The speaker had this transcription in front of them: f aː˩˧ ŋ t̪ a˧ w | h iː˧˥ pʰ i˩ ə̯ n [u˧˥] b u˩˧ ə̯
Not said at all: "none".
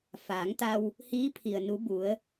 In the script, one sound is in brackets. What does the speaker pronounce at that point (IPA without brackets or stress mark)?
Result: u˧˥